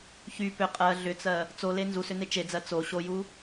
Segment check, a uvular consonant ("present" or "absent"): present